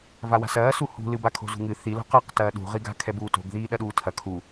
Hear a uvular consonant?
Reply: yes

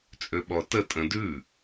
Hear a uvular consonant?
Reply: no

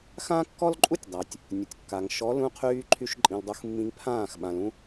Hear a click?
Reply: yes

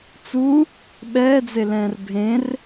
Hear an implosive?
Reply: yes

